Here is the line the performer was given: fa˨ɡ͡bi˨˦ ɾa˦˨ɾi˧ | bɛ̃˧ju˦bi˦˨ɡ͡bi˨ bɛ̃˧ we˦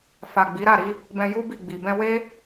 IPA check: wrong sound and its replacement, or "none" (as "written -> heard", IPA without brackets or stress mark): none